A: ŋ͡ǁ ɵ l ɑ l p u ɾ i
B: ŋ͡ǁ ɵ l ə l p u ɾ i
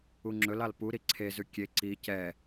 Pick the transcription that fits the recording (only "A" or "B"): A